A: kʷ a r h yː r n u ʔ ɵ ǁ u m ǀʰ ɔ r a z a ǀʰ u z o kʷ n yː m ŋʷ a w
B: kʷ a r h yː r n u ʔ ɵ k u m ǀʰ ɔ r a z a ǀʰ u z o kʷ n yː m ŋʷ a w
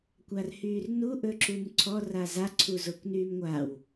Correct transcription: A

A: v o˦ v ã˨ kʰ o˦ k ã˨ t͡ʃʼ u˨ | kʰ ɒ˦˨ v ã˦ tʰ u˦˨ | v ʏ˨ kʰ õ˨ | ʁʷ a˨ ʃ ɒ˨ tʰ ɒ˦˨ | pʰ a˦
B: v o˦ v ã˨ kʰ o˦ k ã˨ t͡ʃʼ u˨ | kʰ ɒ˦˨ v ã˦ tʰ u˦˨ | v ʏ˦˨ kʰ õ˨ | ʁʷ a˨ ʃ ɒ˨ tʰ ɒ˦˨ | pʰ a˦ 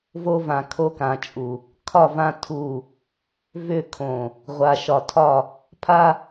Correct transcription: B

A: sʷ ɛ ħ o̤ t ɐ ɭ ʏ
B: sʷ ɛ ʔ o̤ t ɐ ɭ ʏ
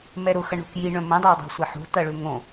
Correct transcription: A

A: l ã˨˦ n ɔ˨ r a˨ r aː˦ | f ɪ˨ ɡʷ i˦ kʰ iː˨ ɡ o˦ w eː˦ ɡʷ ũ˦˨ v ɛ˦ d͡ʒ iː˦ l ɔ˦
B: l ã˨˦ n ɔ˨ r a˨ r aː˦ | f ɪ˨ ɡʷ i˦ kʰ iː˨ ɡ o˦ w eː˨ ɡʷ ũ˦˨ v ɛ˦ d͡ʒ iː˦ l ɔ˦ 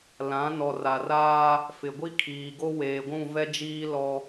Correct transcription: B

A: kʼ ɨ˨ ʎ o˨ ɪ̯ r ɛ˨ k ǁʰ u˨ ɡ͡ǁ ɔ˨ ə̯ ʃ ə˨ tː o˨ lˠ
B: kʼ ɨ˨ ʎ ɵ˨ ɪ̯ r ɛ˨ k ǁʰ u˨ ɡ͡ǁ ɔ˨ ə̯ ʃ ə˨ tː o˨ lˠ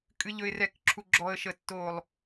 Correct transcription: B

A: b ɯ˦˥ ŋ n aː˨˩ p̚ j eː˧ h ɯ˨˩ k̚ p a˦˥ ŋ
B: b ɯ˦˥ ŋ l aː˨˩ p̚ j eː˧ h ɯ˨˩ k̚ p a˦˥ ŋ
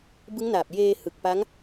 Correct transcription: A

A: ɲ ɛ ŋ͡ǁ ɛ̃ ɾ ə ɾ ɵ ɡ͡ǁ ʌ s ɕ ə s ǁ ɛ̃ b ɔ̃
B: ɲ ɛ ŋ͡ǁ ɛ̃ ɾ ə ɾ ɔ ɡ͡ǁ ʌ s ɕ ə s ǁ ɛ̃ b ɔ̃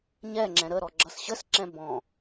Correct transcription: B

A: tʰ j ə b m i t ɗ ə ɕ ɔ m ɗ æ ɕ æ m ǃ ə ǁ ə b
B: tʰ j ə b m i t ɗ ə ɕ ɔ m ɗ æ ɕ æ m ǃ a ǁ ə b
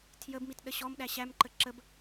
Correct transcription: A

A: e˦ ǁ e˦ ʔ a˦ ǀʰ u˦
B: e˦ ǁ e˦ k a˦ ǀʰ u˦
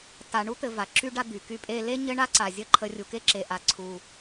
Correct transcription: A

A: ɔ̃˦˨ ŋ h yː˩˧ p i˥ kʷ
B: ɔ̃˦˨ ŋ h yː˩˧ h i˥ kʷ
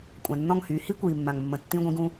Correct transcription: B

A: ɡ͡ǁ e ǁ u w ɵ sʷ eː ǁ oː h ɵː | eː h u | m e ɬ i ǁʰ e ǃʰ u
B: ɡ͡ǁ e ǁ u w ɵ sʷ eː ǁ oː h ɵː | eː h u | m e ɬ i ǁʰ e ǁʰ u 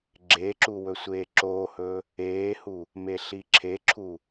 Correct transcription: B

